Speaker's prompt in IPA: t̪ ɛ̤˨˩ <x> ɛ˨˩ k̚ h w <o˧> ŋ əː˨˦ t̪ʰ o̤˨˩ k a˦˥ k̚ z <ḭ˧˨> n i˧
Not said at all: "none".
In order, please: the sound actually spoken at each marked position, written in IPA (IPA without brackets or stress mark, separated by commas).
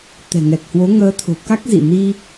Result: ŋ, o˨˦, ḭ˧˨